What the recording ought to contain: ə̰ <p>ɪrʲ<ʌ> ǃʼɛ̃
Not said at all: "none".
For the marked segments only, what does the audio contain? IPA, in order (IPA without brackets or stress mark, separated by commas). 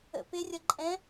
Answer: p, ʌ